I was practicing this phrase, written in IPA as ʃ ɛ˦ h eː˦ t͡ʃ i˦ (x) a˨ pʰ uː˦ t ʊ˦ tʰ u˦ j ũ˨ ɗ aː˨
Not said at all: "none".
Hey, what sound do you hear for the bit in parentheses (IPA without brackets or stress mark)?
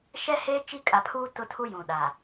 kʼ